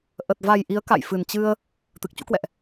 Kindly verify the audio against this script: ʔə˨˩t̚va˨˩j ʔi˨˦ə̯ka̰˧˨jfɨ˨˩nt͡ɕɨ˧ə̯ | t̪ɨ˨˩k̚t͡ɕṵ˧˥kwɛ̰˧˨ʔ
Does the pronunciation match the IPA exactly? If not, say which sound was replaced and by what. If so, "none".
none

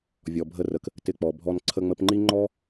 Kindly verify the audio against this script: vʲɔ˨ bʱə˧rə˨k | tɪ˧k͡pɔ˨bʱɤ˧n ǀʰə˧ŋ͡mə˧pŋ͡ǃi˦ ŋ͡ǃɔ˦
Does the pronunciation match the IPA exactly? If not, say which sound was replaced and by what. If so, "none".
ɤ˧ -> ɔ˧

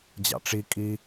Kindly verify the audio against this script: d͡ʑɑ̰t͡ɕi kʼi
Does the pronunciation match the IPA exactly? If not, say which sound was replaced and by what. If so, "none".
t͡ɕ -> ʈ͡ʂ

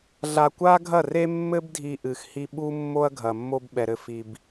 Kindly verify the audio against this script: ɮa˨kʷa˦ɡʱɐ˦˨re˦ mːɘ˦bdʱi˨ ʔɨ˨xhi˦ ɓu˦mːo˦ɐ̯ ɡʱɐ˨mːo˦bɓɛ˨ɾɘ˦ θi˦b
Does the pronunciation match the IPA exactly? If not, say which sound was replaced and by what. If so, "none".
θ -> f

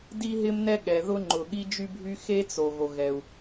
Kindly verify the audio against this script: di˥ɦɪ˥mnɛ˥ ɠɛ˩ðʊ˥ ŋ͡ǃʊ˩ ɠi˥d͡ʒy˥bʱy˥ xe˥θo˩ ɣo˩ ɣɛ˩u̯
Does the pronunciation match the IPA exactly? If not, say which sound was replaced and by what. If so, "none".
θ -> t͡s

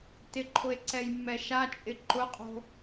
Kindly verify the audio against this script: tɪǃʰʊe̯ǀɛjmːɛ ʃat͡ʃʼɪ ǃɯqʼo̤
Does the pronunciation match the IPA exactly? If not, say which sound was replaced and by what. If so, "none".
ɯ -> ʊ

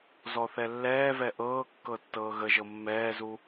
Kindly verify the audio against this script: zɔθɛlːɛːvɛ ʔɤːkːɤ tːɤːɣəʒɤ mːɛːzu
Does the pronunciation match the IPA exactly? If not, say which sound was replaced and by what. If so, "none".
none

